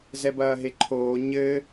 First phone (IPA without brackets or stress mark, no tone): z